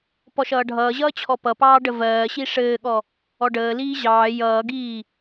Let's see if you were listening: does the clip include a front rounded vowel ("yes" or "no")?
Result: no